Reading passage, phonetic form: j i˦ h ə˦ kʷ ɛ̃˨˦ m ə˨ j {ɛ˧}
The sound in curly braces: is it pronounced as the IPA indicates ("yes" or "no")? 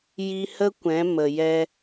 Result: yes